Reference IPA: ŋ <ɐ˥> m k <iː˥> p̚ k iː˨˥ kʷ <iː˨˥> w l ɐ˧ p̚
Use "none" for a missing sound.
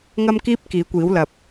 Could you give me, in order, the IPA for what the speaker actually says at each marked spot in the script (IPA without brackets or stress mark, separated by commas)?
ɐ˥, iː˥, iː˨˥